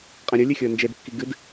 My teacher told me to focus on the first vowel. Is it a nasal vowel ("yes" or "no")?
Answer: yes